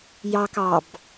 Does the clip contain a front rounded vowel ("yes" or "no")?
no